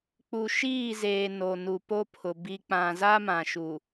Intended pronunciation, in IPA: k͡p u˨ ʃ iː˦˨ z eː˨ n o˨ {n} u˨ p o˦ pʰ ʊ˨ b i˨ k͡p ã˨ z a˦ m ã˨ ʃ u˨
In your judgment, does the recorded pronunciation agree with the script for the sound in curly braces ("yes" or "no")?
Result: yes